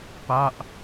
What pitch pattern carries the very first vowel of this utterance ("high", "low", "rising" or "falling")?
falling